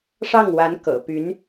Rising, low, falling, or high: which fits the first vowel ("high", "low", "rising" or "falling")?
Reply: falling